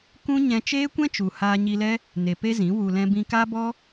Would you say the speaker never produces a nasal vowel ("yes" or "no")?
no